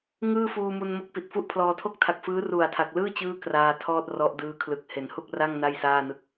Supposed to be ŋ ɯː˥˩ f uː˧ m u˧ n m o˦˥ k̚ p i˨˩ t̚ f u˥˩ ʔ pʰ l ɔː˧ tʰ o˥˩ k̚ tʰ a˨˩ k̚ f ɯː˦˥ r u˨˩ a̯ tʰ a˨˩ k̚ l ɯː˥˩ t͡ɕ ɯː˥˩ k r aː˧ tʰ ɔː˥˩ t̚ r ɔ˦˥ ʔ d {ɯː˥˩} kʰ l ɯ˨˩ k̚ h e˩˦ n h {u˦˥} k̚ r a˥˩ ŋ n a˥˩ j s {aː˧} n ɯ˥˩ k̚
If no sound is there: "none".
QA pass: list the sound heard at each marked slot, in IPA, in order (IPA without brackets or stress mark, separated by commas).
ɯː˦˥, u˥˩, aː˥˩